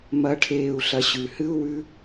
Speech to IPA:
m ɐ˧˥ ʈʰ eː˧ u̯ ɬ ɐ˧ ɕ ʉ˩˧ h ɨ˥ u̯ w ʉ˧˥

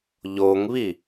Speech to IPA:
ʎ o ŋ β i

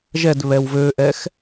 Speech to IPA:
ʒ ɛ d β ɛ w v ø ʔ ɛ x

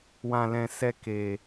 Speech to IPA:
w ã˧ l ɛ̃˧ s ɛ˧ k eː˨

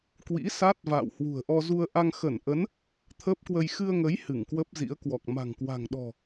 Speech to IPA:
k w ḭ˧˥ s a˦˥ t̚ v a̰ː˧˨ w h w ṳ˨˩ ə̯ ʔ ɔ˧ z u˧ ə̯ ʔ a˧ ŋ x ə˧˩ n ʔ ə˨˦ n | t̪ʰ əː˦˥ p̚ k w ə˧ j x ɨ˧ ə̯ ŋ ə˨˦ j h ɨ˧˩ ŋ k w ə˦˥ p̚ z ḭ˧˥ ə̯ k w ɔ˨˩ k̚ m a̤˨˩ ŋ k w a̤˨˩ ŋ ɗ ɔ̤˨˩

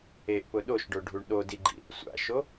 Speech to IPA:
e ʔ p ʊ ɗ o ʃ ɖ o ɖʱ u ɳ ɗ o d i ɡ͡ǃ ḭ | sʷ a̰ ʃ o

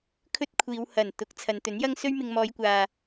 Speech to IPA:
kʰ ɵ˥ t̚ kʷʰ iː˨˧ w h ɐ˨˩ n t̪ ʊ˨˥ k̚ t͡sʰ ɐ˨˧ n t̪ ɵ˨˥ n j ɐ˥ ŋ s ɵ˥ ɥ m ɪ˧ ŋ m ɔː˨˧ j kʷ aː˨

